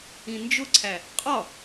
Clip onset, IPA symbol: ĩ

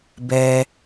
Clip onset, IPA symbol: b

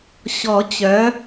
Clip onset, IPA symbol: ɕ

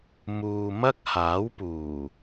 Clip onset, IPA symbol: m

